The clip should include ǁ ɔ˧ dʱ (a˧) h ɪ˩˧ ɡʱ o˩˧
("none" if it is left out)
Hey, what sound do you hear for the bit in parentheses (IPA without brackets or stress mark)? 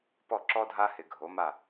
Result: a˧